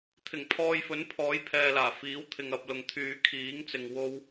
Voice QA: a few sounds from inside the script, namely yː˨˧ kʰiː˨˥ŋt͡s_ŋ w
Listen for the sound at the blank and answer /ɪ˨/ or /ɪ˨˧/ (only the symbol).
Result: ɪ˨